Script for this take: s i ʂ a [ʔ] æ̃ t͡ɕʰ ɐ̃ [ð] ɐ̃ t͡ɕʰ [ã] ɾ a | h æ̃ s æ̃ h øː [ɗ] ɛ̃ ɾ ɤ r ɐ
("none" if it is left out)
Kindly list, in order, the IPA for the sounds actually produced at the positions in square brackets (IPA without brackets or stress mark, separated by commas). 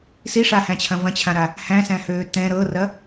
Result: h, v, ã, t̪